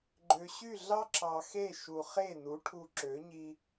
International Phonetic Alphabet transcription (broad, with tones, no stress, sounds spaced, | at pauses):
ɡ͡ǃ ø˩ ɕ y˥˩ ɮ ɑ˥ ǁ ɑ˩ x e˥˩ ʃ u˩ χ e˥˩ n u˩˥ ʈʰ u˧ ǁ ø˩˥ ɲ i˧